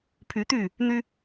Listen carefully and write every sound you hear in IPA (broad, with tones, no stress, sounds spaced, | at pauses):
pʰ y˨˦ t̪ y˥˨ | n̪ y˦